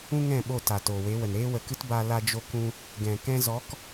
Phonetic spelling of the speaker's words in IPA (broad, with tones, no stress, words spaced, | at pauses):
ũ˦ŋɛ̃˦˨ ɓo˦˨ta˨ toː˨we˨˦wə˨n ɾeː˦wə˨kɨ˦t ba˦ la˧d͡ʒo˧kũ˧ | ɡɛ̃˨ kɛ̃˧zɔ˨˦k